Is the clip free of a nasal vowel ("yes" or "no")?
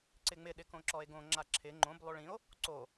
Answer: no